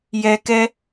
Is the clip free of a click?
yes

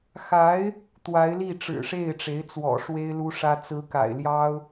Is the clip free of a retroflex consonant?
no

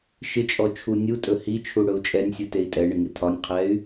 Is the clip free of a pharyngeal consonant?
yes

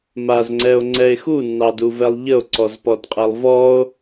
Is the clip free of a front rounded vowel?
yes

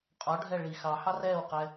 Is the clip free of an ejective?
no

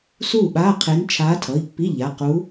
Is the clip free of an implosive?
no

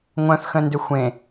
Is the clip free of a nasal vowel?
no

